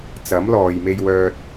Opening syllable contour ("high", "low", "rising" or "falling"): rising